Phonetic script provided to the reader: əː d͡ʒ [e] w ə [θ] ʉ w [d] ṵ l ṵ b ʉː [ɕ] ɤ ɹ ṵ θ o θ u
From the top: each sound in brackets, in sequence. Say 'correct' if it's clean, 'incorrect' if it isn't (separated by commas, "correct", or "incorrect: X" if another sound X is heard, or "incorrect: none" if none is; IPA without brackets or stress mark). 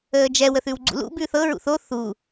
incorrect: ɛ, correct, incorrect: ɡ͡ǀ, incorrect: θ